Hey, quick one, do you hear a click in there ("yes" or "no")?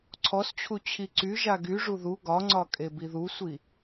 yes